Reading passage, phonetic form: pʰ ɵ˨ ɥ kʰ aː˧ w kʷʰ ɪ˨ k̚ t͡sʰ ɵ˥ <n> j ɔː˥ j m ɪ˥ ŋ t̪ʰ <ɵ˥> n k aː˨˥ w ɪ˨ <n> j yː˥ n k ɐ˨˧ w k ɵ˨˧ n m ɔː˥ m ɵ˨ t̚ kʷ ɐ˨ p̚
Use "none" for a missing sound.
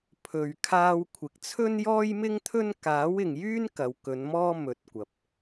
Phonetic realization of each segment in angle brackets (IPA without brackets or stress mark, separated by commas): n, ɵ˥, ŋ